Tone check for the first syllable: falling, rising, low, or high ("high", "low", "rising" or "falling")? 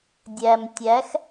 low